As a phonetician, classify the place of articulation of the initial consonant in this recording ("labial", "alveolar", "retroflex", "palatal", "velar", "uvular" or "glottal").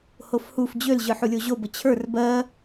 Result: glottal